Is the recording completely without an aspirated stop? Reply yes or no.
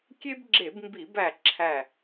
no